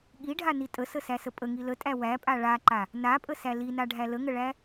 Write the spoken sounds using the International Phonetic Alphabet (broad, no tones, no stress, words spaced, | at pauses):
ɠiɖʱani tʼəsəsæsə pʼəŋi lətʼæ wæpʼa ɭaǃa | napʼəsæ linaɖʱæ ləŋəɭæ